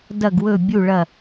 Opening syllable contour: falling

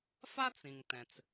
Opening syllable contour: high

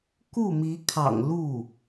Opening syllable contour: falling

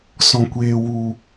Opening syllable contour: low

